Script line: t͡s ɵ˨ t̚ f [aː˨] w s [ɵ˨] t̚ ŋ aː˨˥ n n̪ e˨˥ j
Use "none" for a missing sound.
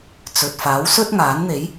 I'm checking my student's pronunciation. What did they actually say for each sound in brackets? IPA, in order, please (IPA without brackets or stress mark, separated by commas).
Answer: aː˨˥, ɵ˥